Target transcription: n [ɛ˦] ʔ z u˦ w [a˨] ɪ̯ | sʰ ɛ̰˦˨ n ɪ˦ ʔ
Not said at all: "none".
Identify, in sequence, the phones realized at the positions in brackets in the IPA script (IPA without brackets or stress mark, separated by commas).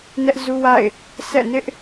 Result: ɛ˦, a̰˦˨